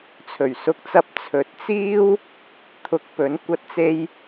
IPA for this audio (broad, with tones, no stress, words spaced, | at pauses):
t͡sʰɵ˨˩ɥsʊ˧k̚t͡sɐ˧p̚ t͡sʰɵ˨˥t̚t͡siː˥w | t̪ʰʊ˧k̚pɵ˨˥n kʷɐ˧t̚t͡se˧j